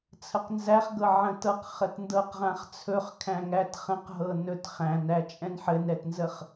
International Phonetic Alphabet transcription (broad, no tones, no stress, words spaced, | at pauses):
t͡sʰəqnzæχɡɤ ʕə̃tɤq χətndɤqʁãχt͡sʰɵχ kʰæ̃ŋæt χə̃qɦɤ nɵt χæ̃næt͡ʃʼɛ̃n ħɘnɾɛtnzəχ